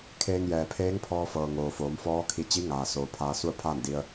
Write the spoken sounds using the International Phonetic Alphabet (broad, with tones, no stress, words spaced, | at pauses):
kʰeː˧ŋjɛː˩ pʰeː˧˥ŋpʰɔː˧fɤː˩ ŋoː˩foː˩˧m fɔː˧˥kʰi˧ t͡ɕi˧˥ŋaː˩soː˩ pʰaː˧su˥˨ə̯pʰaː˥˨ndi˧ə̯